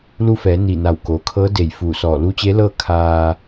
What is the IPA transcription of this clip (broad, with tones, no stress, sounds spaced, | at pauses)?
l u˧ f ɛː˩˧ n i˧˩ n a˧˩ w k oː˩ kʰ ɤː˧˥ d e˧˩ j f uː˧˩ s ɔː˧˩ l u˧˥ t͡ɕ e˧˥ l ɤː˥˨ kʰ aː˧